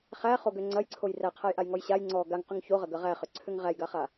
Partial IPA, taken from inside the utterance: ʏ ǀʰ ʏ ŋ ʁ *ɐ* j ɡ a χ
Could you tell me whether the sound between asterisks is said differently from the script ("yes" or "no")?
yes